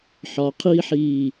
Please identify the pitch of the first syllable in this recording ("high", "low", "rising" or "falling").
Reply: low